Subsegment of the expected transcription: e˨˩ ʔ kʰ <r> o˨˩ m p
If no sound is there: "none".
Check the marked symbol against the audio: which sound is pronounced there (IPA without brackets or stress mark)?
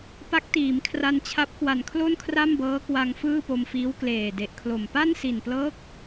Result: l